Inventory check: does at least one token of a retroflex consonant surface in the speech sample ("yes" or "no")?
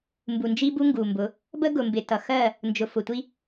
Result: no